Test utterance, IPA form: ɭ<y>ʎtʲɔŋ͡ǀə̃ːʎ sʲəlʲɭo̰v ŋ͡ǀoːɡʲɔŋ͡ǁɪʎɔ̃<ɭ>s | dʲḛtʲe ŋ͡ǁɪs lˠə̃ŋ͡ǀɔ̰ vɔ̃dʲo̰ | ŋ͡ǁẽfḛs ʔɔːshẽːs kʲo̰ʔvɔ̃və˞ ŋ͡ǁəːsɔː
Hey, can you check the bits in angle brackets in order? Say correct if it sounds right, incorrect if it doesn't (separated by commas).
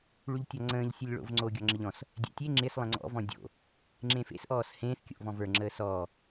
correct, incorrect